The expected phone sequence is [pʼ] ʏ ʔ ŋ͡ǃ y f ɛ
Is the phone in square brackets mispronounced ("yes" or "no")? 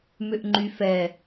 yes